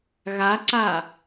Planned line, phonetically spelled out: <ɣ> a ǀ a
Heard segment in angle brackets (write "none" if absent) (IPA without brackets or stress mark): ɣ